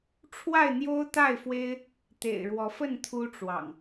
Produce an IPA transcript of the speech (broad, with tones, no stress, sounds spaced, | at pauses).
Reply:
ʈ͡ʂʰ w a˥˨ ɪ̯ n̪ j o˦ ʊ̯ t̪ a˥˨ ɪ̯ f w e˦ ɪ̯ | t̪ ḛ˨˩ ɪ̯ ɻ w ɔ˨˦ f ə˥˨ n t̪ʰ u˦ ʈ͡ʂ w ɑ̰˨˩ ŋ